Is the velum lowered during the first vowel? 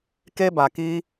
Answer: no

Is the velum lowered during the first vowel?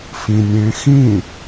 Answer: yes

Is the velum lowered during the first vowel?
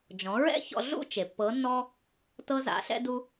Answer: yes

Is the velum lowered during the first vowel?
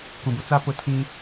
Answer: yes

